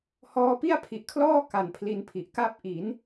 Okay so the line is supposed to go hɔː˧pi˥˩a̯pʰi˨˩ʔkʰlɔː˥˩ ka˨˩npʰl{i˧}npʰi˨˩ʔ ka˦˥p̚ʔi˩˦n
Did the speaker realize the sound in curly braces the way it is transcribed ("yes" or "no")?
yes